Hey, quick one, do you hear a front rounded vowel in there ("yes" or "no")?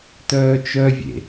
yes